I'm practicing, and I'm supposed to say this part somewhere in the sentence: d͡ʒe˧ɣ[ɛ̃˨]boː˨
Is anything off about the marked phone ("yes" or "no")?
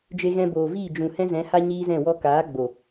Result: yes